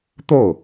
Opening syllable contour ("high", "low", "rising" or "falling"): falling